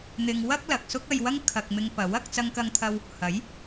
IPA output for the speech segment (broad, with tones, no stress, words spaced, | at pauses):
n̪ɪ˧ŋ wɐ˥k̚ lɐ˨k̚sʊ˥k̚ɐ˧jwɐ˥ŋ kʰɐ˧k̚mɪ˧ŋpɐ˨˥w ɐ˨˥k̚ t͡sɐ˥ŋkɐ˥ŋt̪ʰɐ˥w | hɐ˨˥j